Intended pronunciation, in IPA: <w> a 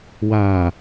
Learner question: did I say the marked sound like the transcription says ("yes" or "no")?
yes